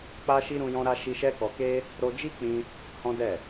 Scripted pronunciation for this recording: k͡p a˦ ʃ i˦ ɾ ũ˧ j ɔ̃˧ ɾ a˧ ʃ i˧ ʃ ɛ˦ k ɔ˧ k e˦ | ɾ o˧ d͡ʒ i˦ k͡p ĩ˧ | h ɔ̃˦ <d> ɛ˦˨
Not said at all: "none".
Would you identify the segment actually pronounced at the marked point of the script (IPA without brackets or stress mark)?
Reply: d